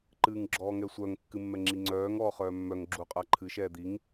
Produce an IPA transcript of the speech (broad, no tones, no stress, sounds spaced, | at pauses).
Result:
ǃ ɨː ŋ ɡ͡ǁ ɔː ŋ ɛ sʷ œ ŋ kː ɨ mː ɛ ŋ͡ǁ i ŋ͡ǀ œː ŋ ɔː χ œː mː œ ŋ ɡ͡ǁ u qʼ a ǃʰ ɨ ʃ ɛː d̪ i ŋ